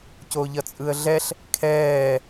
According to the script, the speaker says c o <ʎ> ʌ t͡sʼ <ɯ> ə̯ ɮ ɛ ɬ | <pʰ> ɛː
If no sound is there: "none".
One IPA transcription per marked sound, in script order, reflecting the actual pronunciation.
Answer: ʎ, ɯ, kʰ

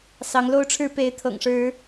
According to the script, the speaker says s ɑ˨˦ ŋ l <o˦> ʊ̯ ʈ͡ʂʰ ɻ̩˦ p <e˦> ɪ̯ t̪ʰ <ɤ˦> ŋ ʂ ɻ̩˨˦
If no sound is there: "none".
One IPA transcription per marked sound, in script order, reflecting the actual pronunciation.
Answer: o˦, e˨˦, ɤ̰˨˩

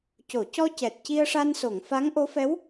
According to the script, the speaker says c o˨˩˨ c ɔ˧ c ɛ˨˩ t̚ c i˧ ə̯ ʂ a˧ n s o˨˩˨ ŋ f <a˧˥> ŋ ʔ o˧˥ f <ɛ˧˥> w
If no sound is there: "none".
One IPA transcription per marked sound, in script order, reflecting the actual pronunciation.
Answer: a˧˥, ɛ˧˥

